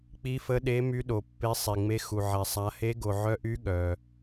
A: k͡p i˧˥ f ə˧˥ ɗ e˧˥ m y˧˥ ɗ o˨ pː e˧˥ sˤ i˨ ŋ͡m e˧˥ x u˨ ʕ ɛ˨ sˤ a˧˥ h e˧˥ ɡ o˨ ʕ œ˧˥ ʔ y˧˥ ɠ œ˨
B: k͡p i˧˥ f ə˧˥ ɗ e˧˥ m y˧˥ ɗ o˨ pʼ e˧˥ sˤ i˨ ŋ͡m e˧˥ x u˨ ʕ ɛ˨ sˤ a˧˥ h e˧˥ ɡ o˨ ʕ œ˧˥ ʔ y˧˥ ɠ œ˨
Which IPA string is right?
A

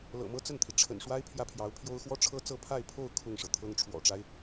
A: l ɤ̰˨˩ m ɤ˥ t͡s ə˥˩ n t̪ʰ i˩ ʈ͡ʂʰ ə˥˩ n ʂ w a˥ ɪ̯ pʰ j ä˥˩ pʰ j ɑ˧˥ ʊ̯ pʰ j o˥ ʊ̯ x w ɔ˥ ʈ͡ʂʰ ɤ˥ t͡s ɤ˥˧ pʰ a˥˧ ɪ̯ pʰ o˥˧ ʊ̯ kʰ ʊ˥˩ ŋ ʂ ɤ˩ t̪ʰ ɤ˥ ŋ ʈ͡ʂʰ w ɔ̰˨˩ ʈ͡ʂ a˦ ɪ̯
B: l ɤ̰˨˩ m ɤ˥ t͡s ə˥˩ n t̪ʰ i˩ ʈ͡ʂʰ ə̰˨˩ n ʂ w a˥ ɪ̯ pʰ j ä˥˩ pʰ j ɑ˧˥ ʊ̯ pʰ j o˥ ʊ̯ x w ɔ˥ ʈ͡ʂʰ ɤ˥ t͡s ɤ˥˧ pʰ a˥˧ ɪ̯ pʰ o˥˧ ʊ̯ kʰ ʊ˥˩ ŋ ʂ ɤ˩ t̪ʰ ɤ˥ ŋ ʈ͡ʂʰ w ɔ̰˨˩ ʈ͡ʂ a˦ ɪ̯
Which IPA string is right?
B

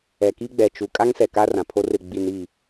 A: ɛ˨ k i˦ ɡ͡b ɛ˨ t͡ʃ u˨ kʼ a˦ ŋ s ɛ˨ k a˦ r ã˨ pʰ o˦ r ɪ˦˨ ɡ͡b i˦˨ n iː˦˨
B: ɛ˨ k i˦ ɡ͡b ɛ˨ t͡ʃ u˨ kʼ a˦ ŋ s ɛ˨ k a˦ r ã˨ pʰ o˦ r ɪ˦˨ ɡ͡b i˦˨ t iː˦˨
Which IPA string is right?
A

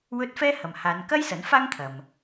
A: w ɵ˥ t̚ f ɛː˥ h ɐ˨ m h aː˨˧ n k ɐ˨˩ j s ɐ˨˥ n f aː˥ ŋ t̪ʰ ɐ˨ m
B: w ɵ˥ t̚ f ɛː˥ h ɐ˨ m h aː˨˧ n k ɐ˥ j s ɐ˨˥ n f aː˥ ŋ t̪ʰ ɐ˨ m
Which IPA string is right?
B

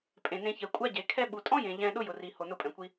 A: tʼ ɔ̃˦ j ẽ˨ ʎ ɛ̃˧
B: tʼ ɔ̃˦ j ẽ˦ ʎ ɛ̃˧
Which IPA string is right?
A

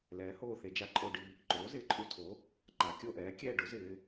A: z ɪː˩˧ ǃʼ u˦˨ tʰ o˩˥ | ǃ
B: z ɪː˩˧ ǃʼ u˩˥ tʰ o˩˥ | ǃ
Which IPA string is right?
A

